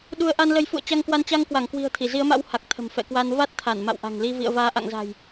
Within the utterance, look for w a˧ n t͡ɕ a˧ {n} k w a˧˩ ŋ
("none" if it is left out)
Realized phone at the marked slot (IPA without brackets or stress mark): ŋ